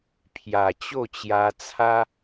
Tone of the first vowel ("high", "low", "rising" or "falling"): low